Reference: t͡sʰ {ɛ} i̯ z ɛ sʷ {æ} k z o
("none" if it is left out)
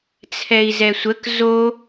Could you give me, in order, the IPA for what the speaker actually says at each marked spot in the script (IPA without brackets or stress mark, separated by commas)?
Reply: ɛ, ə